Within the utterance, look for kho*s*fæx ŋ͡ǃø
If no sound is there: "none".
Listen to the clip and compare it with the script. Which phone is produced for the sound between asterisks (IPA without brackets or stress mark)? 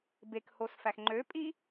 s